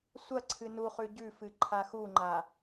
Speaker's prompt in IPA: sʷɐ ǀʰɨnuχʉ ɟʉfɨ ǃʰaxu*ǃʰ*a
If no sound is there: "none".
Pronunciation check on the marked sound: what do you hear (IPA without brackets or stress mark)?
ŋ͡ǃ